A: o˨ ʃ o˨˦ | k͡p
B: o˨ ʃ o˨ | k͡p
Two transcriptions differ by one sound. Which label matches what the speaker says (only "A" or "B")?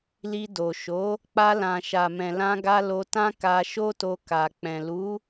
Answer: A